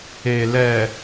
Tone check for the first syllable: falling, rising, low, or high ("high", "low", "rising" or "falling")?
low